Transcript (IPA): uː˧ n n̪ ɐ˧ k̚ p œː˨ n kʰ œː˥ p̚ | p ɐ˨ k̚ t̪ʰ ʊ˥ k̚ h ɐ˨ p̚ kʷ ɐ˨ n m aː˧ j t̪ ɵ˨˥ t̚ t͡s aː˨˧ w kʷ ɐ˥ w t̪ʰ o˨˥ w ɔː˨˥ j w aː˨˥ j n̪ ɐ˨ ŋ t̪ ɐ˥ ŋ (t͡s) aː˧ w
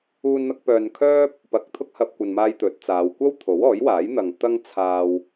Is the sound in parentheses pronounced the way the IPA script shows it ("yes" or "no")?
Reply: no